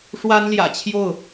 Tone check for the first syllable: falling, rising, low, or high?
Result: high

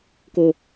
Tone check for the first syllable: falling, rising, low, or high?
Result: low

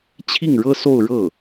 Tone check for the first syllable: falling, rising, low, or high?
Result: falling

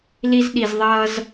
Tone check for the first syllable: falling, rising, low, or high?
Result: high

